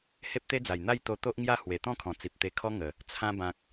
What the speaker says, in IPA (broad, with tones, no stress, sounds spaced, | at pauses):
h e˦ p̚ t̪ e˦ d͡z a˨˩ j n̪ a˥˧ j t̪ o˧ t̪ o˦ ʔ ŋ j a˥˧ h w e˨˩ t̪ ɔ̃˥˧ kʰ ɔ̃˨˩ t͡s i˨ p̚ t̪ e˧ kʰ ɔ˦ ŋ ə˨˩ | t͡sʰ ã˧ b ã˨ k̚